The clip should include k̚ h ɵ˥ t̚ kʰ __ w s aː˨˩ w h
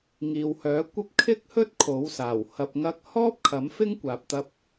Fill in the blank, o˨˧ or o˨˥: o˨˥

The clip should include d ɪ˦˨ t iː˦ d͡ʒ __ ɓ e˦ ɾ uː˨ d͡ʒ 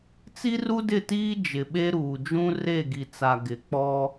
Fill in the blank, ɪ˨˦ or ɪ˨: ɪ˨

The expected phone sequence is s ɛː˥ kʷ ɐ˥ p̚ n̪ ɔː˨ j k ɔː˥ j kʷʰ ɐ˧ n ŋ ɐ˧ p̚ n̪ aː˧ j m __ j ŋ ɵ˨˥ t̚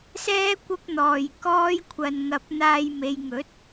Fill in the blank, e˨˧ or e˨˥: e˨˧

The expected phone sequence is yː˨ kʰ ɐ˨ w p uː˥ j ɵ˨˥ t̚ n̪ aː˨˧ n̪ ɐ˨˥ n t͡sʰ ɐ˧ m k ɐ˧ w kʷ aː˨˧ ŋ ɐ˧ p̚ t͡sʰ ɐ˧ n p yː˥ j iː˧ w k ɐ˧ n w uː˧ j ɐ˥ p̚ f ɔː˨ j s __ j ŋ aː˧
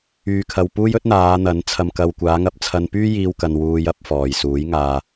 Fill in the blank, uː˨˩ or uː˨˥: uː˨˥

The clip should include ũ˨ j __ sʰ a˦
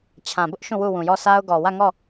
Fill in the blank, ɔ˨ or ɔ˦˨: ɔ˦˨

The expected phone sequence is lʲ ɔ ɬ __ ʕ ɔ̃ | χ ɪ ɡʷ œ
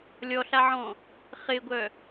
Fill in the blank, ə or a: a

